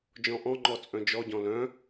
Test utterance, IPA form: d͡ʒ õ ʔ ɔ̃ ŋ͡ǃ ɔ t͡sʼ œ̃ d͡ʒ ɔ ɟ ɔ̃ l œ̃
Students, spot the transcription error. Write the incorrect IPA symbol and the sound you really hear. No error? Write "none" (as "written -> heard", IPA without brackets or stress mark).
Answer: õ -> ɔ̃